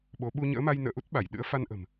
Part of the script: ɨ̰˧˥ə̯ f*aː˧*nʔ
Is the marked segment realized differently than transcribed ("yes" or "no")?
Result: yes